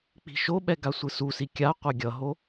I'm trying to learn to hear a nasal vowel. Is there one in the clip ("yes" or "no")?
no